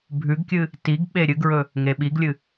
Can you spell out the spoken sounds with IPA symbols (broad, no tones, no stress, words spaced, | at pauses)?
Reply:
bʱʉɡkʲɨ | tiɡɓe ɾʲɨɡɹɵ | ŋeɓiɡlʲɨ